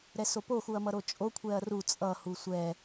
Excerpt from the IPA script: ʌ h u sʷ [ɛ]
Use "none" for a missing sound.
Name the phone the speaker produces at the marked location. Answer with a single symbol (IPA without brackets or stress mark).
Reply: ɛ